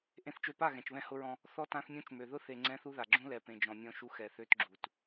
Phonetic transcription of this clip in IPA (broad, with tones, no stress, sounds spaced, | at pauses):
ʔ ẽ˨ θ t͡ʃ ø˨ p a˦˨ ɣ ɛ̃˨ t͡ʃ β ɛ̃˦ h ʊ˦ ɹ ɔ̃˦ | θ ɔ˦ t ã˦ θ mʲ ũ˦ t͡ʃ m ø˨ ð ʊ˦ θ e˨ ŋ͡ǀ ɛ̃˦ θ u˦ ð a˨ ɡ͡ǁ ũ˦ l ɛ˨ p ẽ˨ d͡ʒ ɔ̃˨ mʲ ɔ̃˦ ʃ u˦ x ɛ˨ θ ø˦ t ɡ͡ǁ u˨ t